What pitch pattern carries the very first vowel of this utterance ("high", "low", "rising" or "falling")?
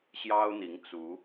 high